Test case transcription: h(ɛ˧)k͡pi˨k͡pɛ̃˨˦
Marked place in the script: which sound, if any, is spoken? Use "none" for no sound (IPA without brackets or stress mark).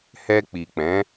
ɛ˧